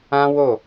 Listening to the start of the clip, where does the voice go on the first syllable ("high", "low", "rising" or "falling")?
high